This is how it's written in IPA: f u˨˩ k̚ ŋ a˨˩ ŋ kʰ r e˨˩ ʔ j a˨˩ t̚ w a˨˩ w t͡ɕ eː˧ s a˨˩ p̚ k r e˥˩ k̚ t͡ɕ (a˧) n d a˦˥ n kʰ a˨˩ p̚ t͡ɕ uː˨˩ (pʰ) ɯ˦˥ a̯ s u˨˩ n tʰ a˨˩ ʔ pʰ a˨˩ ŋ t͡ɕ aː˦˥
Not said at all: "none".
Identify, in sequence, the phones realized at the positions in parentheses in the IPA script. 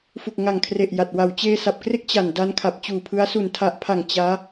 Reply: a˨˩, pʰ

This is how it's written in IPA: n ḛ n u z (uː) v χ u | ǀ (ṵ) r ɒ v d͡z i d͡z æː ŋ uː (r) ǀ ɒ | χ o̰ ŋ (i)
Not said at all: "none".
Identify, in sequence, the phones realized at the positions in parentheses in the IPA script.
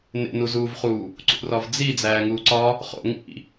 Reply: uː, ṵ, none, ḭ

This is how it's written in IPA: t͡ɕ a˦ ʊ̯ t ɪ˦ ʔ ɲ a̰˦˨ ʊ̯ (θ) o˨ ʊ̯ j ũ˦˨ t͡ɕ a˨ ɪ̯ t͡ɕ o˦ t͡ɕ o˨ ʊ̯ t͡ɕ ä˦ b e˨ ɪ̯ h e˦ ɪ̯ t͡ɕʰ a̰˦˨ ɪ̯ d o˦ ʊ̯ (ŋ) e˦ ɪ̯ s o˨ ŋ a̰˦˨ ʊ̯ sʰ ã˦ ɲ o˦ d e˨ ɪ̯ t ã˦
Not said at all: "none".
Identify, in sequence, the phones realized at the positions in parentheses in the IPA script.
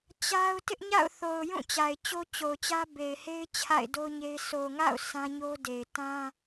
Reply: θ, ɲ

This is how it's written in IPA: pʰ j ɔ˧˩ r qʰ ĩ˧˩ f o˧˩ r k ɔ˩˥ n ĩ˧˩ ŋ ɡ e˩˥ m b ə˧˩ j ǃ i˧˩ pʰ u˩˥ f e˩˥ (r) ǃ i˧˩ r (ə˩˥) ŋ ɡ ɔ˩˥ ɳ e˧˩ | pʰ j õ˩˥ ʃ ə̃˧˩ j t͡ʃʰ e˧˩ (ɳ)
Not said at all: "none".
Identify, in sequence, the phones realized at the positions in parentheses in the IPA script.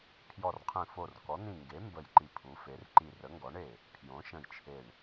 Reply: r, ə˩˥, ɳ

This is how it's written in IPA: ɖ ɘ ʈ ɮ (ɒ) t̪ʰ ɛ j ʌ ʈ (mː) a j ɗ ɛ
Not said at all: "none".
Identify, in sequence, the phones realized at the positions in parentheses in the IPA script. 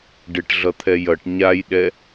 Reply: ʌ, ɲ

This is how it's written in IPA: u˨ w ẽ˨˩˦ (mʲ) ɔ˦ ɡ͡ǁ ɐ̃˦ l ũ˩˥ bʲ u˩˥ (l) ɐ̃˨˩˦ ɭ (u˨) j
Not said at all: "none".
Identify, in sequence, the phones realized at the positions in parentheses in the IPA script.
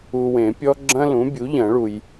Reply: pʲ, ʎ, u˨

